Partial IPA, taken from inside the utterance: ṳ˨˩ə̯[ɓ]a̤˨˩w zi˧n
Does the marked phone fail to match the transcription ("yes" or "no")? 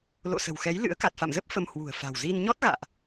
yes